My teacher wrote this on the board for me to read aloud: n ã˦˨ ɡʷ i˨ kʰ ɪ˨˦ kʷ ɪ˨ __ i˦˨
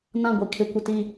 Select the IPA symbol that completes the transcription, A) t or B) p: A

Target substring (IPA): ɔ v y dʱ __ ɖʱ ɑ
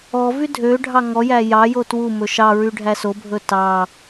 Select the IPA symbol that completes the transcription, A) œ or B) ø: B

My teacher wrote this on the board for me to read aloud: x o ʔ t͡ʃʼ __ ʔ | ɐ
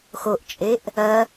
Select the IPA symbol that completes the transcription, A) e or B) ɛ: A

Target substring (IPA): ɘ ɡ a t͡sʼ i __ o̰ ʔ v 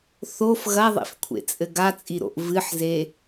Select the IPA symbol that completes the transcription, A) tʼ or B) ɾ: B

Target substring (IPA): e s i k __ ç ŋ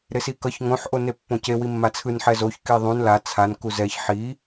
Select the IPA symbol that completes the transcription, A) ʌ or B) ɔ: A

